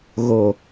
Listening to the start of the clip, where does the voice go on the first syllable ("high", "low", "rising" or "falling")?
low